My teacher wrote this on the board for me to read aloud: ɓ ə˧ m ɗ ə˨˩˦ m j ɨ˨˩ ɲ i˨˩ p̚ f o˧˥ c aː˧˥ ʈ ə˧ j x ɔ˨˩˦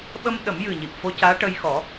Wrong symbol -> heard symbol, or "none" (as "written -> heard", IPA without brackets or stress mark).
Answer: none